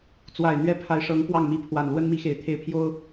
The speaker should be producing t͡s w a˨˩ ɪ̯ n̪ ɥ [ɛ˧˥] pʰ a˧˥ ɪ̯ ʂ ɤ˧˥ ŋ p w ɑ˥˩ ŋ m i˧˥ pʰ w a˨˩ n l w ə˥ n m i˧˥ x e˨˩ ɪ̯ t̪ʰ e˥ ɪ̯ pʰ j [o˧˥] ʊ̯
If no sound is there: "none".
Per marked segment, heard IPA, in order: ɛ˥, o˥

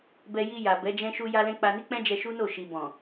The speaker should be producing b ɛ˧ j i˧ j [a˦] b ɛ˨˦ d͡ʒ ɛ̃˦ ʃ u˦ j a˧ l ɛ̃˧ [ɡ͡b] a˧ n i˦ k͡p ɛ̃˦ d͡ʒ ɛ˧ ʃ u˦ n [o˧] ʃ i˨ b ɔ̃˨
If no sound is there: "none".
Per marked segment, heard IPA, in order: a˨, k͡p, o˦˨

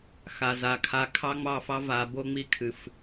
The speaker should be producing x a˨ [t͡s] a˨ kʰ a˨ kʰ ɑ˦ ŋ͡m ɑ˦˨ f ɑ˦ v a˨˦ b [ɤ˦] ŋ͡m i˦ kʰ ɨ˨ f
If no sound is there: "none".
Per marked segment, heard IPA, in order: z, o˦

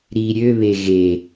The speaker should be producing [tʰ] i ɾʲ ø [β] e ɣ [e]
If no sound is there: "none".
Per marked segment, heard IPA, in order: ɾ, β, e

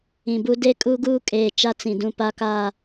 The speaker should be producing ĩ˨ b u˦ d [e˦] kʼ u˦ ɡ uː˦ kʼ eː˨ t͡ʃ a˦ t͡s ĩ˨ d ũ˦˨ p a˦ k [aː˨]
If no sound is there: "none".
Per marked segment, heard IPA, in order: e˦, aː˦˨

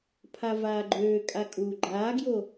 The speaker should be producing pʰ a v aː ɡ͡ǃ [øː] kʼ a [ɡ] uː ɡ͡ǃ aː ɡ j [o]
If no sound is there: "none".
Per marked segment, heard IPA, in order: øː, kʼ, o

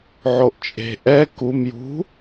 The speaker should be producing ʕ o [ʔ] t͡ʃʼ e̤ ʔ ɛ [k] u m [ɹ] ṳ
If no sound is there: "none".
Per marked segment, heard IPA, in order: ʔ, k, j

